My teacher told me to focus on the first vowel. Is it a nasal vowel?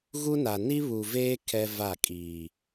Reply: no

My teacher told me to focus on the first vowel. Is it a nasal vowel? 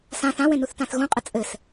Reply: yes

